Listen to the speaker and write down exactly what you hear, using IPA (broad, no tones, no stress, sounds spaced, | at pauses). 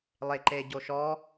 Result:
lˠ e ǃ e ɟ o ʃ ɔ